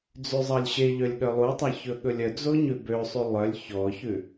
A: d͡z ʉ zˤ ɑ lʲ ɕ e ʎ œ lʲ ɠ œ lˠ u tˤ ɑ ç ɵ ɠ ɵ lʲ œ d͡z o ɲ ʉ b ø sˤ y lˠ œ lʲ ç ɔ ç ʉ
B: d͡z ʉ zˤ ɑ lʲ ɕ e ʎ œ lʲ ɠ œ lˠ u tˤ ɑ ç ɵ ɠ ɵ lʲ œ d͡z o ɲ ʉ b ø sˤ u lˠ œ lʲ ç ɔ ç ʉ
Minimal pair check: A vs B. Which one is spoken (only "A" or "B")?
A